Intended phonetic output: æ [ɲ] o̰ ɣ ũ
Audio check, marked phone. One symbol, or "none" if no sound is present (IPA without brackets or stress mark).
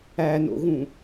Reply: n